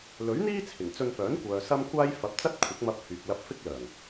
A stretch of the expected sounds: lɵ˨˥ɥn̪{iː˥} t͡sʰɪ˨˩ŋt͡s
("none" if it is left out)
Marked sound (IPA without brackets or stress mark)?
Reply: iː˥